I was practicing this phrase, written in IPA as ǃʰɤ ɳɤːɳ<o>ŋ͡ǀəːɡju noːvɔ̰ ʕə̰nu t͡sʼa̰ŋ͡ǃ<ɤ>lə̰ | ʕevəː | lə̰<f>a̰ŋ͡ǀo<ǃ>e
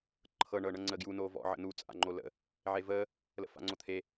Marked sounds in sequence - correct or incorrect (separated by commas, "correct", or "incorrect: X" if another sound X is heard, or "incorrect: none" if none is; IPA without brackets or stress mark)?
incorrect: ɤ, incorrect: o, correct, incorrect: t̪ʰ